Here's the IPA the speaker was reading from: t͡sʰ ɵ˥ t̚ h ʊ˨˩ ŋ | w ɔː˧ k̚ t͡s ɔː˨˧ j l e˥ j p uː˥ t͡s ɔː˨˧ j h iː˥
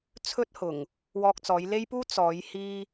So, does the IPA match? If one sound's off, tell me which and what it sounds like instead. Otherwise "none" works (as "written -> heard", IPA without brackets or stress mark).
none